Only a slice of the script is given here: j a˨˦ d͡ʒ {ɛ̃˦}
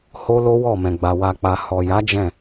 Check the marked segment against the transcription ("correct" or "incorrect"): incorrect